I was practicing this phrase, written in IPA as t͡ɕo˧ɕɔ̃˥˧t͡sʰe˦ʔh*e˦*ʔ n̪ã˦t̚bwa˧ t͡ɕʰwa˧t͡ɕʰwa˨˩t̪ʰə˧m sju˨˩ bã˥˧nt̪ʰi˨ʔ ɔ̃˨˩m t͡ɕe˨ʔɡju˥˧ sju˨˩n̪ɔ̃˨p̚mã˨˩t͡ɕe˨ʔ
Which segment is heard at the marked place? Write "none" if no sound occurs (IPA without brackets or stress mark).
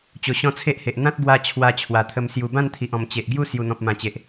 e˨